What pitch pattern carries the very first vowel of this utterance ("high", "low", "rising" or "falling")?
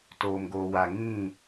low